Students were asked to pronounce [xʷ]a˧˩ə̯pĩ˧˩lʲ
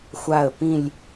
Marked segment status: correct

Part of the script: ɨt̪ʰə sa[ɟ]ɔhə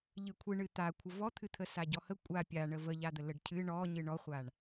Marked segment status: correct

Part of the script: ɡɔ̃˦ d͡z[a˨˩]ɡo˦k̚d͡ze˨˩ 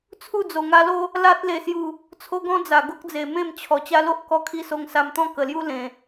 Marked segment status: correct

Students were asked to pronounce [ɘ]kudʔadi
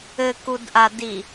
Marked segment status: correct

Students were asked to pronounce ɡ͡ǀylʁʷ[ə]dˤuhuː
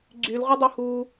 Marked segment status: correct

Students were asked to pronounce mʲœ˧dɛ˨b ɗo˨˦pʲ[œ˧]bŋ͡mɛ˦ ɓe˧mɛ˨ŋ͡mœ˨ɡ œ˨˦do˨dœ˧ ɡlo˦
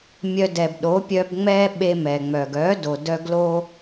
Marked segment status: correct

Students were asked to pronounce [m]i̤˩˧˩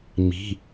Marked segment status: correct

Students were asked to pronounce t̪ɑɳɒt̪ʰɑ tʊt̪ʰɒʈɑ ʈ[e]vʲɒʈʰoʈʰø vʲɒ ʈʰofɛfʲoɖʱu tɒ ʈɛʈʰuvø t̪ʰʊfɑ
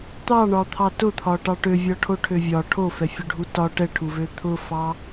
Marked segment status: incorrect: ø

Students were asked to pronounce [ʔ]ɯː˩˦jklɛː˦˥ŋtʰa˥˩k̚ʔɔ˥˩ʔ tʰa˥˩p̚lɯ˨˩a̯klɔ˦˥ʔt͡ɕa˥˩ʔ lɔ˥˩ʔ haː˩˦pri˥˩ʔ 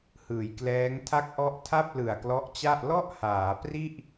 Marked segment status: incorrect: h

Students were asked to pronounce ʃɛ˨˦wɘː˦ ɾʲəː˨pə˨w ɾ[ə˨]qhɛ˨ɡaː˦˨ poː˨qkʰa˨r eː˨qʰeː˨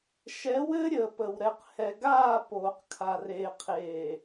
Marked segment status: incorrect: ɛ˨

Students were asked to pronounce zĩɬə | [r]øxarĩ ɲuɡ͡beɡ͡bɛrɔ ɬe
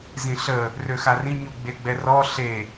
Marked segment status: correct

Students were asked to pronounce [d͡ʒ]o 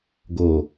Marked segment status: incorrect: ɡ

